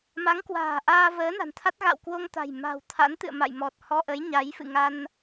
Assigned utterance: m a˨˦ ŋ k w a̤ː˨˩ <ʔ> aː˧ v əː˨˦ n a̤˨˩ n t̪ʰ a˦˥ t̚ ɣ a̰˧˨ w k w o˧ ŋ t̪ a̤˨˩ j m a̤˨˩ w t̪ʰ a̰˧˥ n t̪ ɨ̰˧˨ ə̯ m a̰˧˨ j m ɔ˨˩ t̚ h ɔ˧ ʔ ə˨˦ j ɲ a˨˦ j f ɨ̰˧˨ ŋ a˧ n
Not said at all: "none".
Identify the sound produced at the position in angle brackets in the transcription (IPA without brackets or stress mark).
ʔ